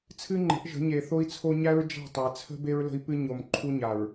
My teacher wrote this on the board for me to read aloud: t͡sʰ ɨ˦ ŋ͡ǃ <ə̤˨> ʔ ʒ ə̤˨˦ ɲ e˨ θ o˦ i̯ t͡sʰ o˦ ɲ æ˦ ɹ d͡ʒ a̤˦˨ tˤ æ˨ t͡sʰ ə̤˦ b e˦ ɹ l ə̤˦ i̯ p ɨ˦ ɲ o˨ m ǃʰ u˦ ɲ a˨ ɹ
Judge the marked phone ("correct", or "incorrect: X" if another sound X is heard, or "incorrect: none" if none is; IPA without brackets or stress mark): incorrect: ə̤˨˦